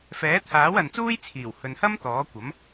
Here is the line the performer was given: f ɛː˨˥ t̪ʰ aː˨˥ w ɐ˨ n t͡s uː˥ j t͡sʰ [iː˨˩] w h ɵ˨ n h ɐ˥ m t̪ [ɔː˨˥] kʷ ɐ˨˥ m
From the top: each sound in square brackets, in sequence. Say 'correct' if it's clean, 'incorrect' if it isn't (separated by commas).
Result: correct, correct